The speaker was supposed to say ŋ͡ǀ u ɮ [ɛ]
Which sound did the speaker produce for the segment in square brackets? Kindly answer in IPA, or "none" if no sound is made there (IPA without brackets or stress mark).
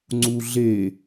e